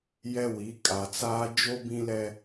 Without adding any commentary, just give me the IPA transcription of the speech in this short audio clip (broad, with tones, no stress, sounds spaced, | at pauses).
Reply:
j ɛ˦ w i˨˦ kʼ a˨ t͡s aː˦ d͡ʒ o˦ b ĩ˦ l ɛ˦